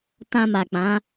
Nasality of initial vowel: nasal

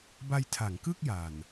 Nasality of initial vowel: oral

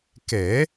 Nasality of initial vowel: oral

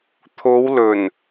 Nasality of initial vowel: oral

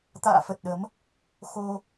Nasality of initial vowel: oral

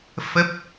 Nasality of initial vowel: oral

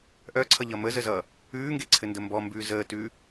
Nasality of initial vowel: oral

